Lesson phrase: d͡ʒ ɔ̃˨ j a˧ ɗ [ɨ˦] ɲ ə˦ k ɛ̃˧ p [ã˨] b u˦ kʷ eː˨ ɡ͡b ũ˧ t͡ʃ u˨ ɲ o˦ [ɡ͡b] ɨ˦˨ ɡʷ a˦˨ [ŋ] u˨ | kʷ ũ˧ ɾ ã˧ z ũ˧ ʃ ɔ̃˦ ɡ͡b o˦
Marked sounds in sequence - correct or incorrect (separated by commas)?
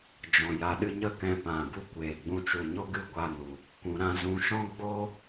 correct, correct, incorrect, incorrect